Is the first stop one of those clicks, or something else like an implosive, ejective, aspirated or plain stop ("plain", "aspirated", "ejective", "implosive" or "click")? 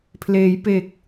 aspirated